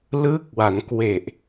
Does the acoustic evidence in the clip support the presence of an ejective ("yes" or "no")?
no